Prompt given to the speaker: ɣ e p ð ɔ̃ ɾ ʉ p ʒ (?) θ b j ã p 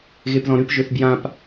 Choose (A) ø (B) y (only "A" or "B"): A